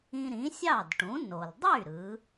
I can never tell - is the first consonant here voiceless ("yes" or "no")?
no